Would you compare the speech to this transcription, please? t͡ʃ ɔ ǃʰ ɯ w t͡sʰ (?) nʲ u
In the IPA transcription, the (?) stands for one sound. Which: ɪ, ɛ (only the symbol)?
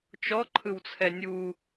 ɛ